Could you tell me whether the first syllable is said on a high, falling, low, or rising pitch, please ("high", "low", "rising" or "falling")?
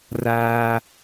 low